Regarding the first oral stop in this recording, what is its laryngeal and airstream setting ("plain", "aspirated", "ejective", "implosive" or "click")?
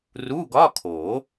plain